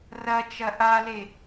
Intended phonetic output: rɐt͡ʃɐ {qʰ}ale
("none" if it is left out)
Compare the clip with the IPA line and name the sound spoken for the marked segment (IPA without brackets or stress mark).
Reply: ʔ